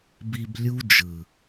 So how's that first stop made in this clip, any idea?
plain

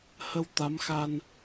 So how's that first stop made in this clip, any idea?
plain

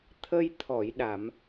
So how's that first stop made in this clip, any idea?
aspirated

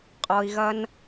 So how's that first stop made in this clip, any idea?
ejective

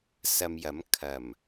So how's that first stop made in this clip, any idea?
aspirated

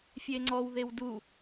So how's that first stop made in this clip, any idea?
click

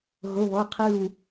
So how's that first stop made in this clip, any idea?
aspirated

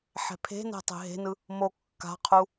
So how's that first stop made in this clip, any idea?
aspirated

